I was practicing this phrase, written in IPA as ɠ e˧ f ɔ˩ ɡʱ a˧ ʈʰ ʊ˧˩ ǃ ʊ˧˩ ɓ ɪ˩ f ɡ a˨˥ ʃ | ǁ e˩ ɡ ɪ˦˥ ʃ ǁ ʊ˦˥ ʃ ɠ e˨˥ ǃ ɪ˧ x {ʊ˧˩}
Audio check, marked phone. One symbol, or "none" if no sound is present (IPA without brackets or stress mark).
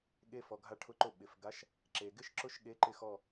ɔ˧˩